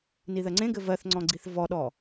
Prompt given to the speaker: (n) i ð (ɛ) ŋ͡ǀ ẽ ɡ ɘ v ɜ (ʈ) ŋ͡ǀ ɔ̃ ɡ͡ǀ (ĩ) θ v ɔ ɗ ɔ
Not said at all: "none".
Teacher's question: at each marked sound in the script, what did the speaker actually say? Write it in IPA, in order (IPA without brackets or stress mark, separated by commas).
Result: n, ɜ, θ, i